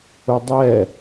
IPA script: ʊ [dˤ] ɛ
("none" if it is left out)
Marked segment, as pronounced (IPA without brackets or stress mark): dˤ